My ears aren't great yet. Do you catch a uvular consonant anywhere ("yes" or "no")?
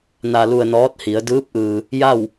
no